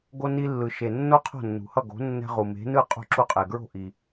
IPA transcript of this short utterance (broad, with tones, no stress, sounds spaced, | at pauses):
ɡ o˧ n i˧ lː ɯ˩ ʃ e˩ nː o˥ qʰ o̤˥˩ nː ṳ˩ h ʌ˥˩ ɡ o̤˩˥ nː ɛ̤˧ ʁ u˩ m e̤˩˥ n ɯ˥˩ qʼ ṳ˧ ǁ u˧ qʼ e˩ ɡ ɹ o̤˥˩ ʔ i˩